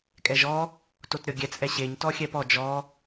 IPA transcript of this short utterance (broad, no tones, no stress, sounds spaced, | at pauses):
kʼ ɛ ʒ ɔ | t o t ɾʲ ɔ ɡʲ ɛ t͡s ʔ ɛ ɕ e ɲ t ɔ xʲ ɛ p ɔ d͡ʒ ɔ